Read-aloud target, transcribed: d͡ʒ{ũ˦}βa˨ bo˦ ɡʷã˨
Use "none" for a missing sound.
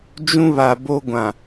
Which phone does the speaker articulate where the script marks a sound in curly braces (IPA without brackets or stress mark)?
ũ˦